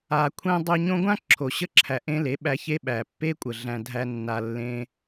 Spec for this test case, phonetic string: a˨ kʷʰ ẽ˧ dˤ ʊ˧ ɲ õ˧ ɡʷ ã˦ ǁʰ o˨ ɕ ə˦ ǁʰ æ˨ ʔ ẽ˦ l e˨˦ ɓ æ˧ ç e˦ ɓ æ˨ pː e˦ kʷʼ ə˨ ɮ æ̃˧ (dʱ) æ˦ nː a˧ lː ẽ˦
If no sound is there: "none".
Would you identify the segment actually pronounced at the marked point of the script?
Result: dʱ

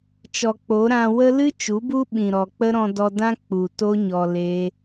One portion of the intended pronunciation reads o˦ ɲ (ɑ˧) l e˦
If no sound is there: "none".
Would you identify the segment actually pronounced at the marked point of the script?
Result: ɔ˧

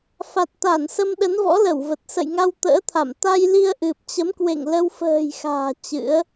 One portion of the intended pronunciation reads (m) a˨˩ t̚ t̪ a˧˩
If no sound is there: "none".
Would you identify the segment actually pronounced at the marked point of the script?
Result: f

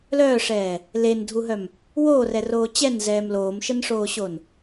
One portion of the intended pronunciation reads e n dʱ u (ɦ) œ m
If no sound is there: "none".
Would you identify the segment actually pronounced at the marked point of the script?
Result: ɦ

